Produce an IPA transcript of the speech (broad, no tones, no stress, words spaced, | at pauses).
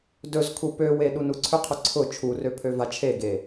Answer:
dɵzkʰu pøwe ɗunuǀʰʏqʰʊ ǀʰʊ t͡ʃʰurø pʰøvat͡ʃʰeɡe